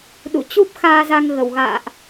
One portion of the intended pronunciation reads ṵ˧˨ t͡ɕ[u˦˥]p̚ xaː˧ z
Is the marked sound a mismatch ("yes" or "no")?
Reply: no